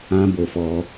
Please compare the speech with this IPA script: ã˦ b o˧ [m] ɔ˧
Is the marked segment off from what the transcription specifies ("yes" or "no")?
yes